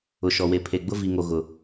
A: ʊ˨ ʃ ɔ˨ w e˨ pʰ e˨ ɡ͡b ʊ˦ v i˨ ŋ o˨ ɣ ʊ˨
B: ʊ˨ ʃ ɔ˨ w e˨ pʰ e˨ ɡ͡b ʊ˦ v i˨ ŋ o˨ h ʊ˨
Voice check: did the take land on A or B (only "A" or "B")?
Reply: A